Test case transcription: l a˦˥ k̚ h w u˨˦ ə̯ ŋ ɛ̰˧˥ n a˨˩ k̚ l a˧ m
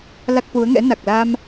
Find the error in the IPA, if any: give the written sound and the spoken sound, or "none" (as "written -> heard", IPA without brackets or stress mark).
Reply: none